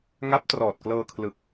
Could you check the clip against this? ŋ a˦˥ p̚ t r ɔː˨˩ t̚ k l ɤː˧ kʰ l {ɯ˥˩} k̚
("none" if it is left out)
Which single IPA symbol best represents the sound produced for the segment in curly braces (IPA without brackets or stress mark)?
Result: ɯ˨˩